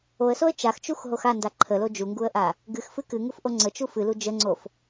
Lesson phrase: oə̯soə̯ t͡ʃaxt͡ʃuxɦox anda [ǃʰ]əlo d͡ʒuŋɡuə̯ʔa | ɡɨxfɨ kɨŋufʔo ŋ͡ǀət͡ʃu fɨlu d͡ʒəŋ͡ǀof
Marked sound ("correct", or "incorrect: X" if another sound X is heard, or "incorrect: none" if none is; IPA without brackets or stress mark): correct